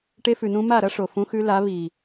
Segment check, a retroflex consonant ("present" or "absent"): present